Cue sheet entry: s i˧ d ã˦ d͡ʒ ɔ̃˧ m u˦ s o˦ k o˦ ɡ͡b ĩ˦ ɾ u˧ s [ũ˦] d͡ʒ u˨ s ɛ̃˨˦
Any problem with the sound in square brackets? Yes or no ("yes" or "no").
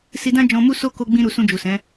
yes